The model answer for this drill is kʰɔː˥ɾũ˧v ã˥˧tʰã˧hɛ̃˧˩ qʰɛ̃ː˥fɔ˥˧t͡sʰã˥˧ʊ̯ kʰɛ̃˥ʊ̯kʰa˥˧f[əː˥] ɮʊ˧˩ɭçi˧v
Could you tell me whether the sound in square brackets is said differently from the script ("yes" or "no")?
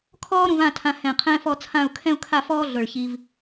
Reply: yes